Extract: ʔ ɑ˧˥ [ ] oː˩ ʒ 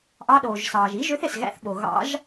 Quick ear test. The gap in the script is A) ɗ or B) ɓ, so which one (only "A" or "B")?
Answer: A